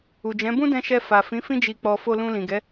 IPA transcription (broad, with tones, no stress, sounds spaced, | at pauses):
u˨ d͡ʒ ɛ̃˨˦ b ũ˦ d ɛ̃˧ ʃ ɛ˧ f a˨ f ĩ˨˦ f ĩ˧ d͡ʒ i˨ k͡p ɔ˨ f o˧ l ũ˧ l ĩ˨ ɡ ɛ˨˦